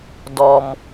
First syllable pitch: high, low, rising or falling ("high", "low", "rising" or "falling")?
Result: low